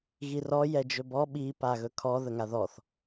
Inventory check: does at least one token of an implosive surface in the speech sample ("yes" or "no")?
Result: yes